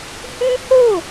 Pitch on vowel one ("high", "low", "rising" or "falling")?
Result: high